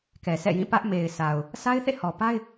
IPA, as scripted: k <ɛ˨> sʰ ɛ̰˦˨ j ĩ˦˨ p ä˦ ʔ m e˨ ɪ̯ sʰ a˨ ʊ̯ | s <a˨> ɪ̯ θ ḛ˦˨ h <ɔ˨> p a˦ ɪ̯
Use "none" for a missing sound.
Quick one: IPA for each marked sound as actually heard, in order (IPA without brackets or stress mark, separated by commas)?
ɛ˨, a˦, ɔ˨